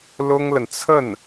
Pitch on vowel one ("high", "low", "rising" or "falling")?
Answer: high